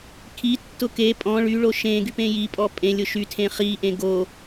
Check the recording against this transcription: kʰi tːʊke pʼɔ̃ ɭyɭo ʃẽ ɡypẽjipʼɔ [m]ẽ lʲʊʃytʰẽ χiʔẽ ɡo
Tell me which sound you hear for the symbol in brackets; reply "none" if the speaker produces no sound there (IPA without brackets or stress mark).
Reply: pʼ